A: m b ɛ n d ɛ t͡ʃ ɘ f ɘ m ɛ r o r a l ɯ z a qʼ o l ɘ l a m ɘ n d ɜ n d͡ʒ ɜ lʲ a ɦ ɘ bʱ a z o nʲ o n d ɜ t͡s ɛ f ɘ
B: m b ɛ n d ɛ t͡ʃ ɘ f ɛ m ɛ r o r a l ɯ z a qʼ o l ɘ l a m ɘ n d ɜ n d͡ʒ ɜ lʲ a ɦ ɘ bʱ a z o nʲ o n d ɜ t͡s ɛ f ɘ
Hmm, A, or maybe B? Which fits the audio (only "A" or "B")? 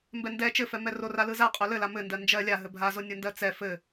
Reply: B